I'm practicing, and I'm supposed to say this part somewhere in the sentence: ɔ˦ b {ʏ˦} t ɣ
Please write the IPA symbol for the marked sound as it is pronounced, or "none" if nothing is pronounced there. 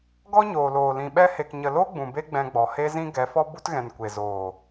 u˦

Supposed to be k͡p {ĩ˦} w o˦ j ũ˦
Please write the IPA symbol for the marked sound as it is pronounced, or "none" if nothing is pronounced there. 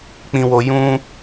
ĩ˦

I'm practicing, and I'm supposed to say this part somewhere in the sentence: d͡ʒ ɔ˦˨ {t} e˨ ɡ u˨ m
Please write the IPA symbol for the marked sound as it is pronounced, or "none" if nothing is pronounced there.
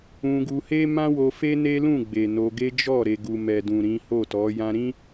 ɾ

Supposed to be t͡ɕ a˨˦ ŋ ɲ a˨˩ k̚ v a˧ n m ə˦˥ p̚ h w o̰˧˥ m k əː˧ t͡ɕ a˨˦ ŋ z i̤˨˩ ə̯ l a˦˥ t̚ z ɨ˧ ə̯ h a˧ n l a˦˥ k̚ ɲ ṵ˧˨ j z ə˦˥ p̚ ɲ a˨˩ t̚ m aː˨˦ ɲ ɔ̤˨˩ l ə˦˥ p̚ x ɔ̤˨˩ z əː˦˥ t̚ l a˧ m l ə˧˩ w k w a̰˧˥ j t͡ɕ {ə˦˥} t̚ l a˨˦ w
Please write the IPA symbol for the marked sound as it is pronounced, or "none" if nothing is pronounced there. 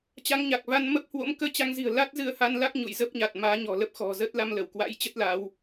ə˦˥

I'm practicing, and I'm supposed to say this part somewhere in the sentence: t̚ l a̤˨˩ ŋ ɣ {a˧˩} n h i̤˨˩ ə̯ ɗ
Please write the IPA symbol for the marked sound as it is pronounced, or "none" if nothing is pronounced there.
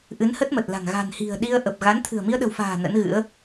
a̤˨˩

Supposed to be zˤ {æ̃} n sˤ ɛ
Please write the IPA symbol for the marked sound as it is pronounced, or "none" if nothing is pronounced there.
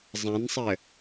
æ̃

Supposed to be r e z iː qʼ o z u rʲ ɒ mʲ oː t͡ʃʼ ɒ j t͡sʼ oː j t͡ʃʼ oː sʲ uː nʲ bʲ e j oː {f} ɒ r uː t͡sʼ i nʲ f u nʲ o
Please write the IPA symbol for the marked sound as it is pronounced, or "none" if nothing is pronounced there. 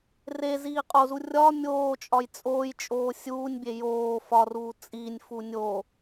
f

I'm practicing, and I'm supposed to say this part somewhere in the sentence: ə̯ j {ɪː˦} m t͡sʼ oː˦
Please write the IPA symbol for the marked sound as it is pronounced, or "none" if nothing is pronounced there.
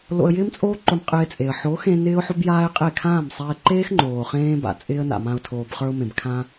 ɪː˦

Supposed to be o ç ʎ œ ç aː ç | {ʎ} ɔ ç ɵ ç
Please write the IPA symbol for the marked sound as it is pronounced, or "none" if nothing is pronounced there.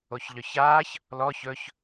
l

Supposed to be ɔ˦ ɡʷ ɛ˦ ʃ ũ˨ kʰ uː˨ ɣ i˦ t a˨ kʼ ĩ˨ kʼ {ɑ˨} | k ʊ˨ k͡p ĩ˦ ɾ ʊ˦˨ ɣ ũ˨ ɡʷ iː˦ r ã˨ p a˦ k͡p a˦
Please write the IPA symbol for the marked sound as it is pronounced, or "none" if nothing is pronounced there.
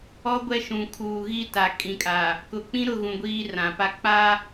a˨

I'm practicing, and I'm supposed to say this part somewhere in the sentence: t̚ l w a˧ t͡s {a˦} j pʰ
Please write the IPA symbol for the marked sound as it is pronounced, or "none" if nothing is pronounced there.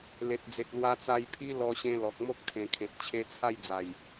a˧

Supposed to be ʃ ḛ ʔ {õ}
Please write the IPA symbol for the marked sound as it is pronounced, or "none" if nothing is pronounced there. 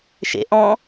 ɔ̃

